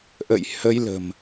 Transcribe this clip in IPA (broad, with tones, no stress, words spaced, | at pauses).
ʔə̰˧˨jhə˧jlə̤˨˩m